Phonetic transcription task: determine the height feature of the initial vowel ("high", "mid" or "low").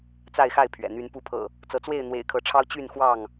low